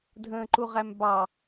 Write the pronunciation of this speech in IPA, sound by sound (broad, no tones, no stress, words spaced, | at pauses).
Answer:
dʱə̃ːǃuʁæmbɑ